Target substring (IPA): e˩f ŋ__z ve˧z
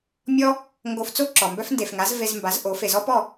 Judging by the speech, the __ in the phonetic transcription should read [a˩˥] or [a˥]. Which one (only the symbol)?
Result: a˩˥